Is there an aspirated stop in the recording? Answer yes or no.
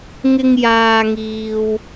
no